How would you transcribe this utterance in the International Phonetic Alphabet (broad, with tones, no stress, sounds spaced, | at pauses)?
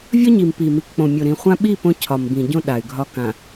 vʲ ɒ˦ ɲ i˨ m p i˨ m i˨ k k͡p õ˨ mʲ o˨ ɾ ĩ˨ χʷ ã˦ ɓ i˦˨ p õ˦ cʰ ɒ˨ m b ĩ˨ ɟ õ˦ ɗ a˨ y̯ ɡʱ ɒ˦ k ã˨